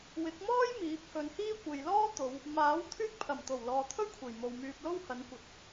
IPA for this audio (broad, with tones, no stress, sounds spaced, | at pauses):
w ɪ˨˥ k̚ m ɔː˥ j m iː˨˥ p̚ h ɵ˨˧ n h iː˥ kʷ e˨ j l ɔː˥ t̪ o˨˧ w | m aː˨˥ w t̪ʰ yː˧ k̚ pʰ ɐ˨˩ m t̪ o˨˩ w l ɔː˨ t̪ʰ ɵ˥ ɥ kʷʰ e˨˩ j m o˨ w m yː˧ p̚ l o˥ w h ɐ˨˥ n kʷ ɐ˨ t̚